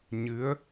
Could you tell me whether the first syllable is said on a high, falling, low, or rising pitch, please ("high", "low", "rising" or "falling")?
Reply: rising